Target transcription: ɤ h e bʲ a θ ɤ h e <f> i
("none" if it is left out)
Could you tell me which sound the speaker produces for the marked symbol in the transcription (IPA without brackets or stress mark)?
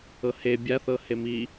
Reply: m